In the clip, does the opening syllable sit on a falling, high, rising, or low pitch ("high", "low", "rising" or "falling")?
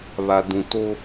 low